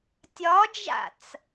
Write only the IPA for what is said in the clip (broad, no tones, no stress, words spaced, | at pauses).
tʲɒd͡ʒa̰t͡s